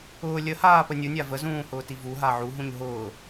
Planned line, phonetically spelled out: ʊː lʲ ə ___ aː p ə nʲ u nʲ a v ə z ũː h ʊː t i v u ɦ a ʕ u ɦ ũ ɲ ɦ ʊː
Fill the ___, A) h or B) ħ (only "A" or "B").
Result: A